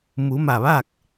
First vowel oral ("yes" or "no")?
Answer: yes